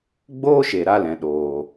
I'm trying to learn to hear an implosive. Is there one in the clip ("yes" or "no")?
yes